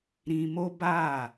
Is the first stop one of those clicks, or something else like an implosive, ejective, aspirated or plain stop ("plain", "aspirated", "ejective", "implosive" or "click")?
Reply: plain